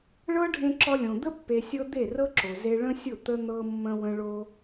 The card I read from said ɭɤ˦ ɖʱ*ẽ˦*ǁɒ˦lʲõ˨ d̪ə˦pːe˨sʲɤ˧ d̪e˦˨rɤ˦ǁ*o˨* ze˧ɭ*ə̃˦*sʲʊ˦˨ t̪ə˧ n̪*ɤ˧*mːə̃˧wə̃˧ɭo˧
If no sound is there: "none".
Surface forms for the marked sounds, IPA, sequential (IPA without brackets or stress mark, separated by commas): ẽ˦, o˨, ə̃˦, ɤ˧